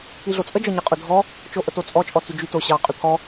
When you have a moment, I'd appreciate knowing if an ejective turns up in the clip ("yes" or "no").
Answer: yes